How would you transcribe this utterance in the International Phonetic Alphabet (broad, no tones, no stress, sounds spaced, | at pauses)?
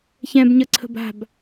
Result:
ç ɛ̃ b ɲ ə ǀʰ ə̤ b a̤ b